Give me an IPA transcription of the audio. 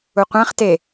u qʷ æ̃ χ t e

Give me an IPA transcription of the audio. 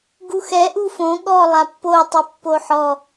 ɡ u x ɛ ʔ u f õ ɠ ɔ lˠ a pː o tˤ ɯ pː o ħ ɔ

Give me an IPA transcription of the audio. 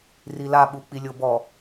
r i l a ɓ u k͡p i lʲ o b ɔ

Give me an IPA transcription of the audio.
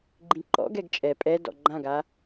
ɡ͡ǃ ĩ ǃ ɔ̰ ɡ ɛ ɡ t͡ʃʼ ɛ pʼ ɛ d ɔ̰ ɡ͡ǃ ã ɡ a

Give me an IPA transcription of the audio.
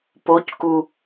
p o c k u

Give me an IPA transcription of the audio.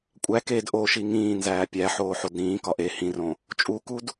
kʷʼ æ k e d ʔ o ʃ i ŋ ĩː n z æː pʲ æ ħ oː ħ o d ɾ ĩː k ɒ ʔ e h ĩ r õ | t͡ʃʼ u k u d

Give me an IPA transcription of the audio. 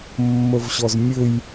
mː ə v ɕ ɔ z mʲ ɘ j

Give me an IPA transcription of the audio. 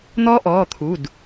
n̪ ɔː˦˥ ʔ ɔː˩˧˩ t̪ʰ u˩˧˩ d

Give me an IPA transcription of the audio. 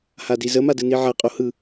h a d i z ə m a d ɯ n i ʕ a qʼ o h ɯ

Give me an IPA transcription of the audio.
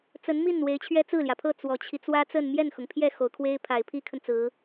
t͡s ə˧˥ n m i˥˩ n w e˧˥ ɪ̯ t͡ɕʰ ɥ ɛ˥ t͡s ɹ̩˥˩ l j ä˩ pʰ ɤ˥˩ t͡s w ɔ˨˩ t͡ɕʰ i˦ t͡s w ä˥ t͡s ə˥˧ n m j ɛ˥˩ n x ʊ˩ ŋ pʰ j ɛ˥˩ x o˨˩ ʊ̯ kʰ w e˥ ɪ̯ pʰ a˨˩ ɪ̯ pʰ i˥ kʰ ə˨ n t͡s ɹ̩˧˥

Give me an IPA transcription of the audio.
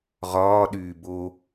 ʁ ɒː ɗ yː b o

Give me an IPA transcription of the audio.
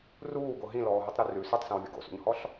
r uː ɡ o ɦ ĩ l ɔː ɦ y tˤ ɾ ʉ r ʉ s u tˤ s œ̃ w vʲ ṵ ɡ o̰ s ṵ ɲ h ɔ ɬ

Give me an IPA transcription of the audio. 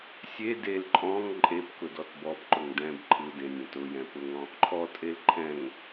sʲ e d e l ǃʼ ɔ̃ ŋ ǃʼ e p k ʊ d ɔ t b ɔ p ǃ ʊ ŋ d ɛ̃ b ǃʰ ɯ d ẽ nʲ ẽ t ʊ j ɛ̃ p ʊ ŋ ɔ̃ | ǃʰ ɔ tʼ e l ǃʰ ɛ̃ ŋ

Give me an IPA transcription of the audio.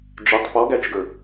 d͡ʒ ɪ tˤ p ɔ ɡ æ t͡ʃ ɡ ə˞

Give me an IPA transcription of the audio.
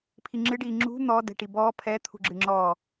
pʰ i ŋ͡ǁ ɨ ɖ iː ŋ͡ǁ ṳ n̪ ɔ d ɛ̤ ʈ i b ɔː pʰ ɛ t̪ʰ ṳ ɡ͡ǁ ɨ ŋ͡ǁ ɔ

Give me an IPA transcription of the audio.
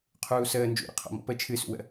qʰ uː s əː n d͡ʒ ṵ ɾ ə̰ qʰ ɔ̰ m ɔ̰ p ə t͡ʃʰ ɨ s ṵ w ə̰

